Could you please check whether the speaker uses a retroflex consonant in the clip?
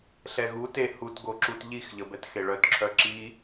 yes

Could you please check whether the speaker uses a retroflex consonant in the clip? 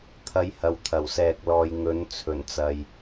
no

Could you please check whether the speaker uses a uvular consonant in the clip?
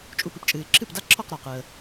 yes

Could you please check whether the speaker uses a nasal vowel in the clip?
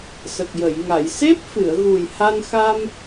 no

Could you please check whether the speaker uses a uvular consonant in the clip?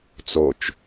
no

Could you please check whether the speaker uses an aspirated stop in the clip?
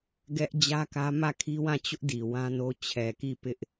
yes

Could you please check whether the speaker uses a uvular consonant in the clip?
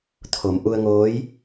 no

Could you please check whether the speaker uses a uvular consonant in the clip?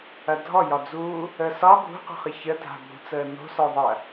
yes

